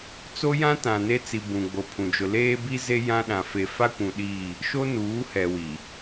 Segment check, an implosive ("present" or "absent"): present